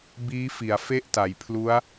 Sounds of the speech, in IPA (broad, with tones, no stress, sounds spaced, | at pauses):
b iː˦˥ f i˩˦ a̯ f e˥˩ ʔ t a˩˦ j pʰ l u˦˥ a̯